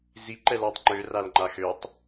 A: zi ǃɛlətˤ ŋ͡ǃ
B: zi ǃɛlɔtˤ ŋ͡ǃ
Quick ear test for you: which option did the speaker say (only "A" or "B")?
B